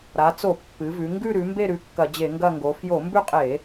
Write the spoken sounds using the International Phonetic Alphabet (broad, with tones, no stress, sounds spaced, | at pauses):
ɾ a˩˧ t͡s o˧˩˧ pː ɨ˩˧ v ʉ˩˧ ŋ ɡ ʉ˦˨ ɾ ʉ˩˧ m b e˦˨ ɾ ʉ˩˧ kː ɐ˧˩˧ d͡ʑ e˧˩˧ ŋ ɡ ɐ˦˨ ŋ ɡ o˩˧ f j o˧˩˧ m b ʉ˦˨ qʼ e˧˩˧